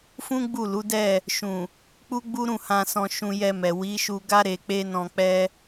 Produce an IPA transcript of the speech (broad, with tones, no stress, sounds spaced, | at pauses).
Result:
f ũ˦ ɡ͡b u˦˨ l u˨˦ d ɛ˦˨ | ʃ ũ˨ | k͡p u˦ ɡ͡b u˦ ɾ ũ˦˨ h ã˧ s ɔ̃˧ ʃ ũ˧ j ɛ˧ m ɛ˨ w i˨˦ ʃ u˧ ɡ a˦ ɾ e˧ k͡p e˦ n ɔ̃˧ k͡p ɛ˦